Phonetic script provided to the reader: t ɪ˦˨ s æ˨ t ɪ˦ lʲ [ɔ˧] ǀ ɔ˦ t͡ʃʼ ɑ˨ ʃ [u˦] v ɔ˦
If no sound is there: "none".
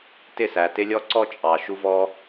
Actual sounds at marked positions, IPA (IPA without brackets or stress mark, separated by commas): ɔ˦, u˦